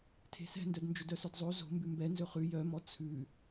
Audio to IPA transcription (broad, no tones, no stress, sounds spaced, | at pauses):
tʰ e̤ s ɛ̤ n d œ d n d͡ʒ ɵ d œ s œ d zˤ o z o̤ m b ʉ m b ɛ n z ɵ χ ʉ j œ m ɔ t͡sʰ ʉ